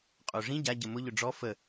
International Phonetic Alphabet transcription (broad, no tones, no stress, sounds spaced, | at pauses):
qʼ o ʐ ĩ ɟ a ɟ ə m ʊ ʎ ʊ ɖ͡ʐ ɔ f ə